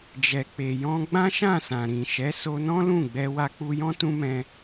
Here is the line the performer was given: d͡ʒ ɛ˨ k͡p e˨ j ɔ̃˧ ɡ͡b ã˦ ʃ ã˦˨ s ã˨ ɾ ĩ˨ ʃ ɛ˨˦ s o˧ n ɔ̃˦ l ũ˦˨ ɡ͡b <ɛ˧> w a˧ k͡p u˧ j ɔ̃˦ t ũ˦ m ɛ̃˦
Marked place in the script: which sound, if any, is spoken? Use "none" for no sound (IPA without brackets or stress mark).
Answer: ɛ˧